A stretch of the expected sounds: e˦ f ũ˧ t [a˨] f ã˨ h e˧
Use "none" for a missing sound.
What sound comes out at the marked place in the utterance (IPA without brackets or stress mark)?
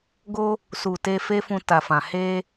a˨